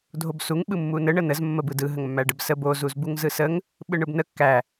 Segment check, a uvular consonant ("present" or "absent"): absent